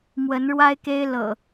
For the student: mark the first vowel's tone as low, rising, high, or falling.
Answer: rising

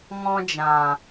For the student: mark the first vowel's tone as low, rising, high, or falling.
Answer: high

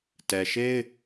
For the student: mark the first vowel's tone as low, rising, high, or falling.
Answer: low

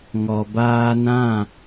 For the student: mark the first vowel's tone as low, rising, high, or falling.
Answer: low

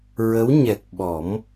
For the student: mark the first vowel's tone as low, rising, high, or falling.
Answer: rising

